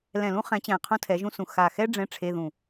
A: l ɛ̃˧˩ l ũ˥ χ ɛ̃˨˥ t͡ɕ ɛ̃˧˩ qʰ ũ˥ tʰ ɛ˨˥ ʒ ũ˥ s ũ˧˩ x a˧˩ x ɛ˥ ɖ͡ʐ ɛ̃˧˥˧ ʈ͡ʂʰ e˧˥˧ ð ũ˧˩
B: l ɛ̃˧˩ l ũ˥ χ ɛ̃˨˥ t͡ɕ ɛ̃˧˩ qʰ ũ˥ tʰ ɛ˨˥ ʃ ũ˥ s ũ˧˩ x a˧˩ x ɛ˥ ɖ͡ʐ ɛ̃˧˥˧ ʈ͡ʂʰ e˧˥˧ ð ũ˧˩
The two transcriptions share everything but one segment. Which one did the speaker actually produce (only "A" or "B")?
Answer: A